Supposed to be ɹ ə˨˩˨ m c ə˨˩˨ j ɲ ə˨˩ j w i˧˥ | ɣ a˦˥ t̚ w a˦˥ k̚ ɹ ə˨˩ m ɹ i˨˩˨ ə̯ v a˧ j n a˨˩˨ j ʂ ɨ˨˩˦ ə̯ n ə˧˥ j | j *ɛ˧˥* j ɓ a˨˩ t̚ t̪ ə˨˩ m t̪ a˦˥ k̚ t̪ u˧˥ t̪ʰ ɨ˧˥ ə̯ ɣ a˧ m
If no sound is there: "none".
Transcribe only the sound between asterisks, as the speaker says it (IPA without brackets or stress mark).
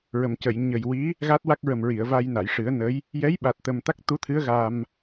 ɛ˧˥